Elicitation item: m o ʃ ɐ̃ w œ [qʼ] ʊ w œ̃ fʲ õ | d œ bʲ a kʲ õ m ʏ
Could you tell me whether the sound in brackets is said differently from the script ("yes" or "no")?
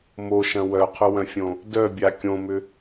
yes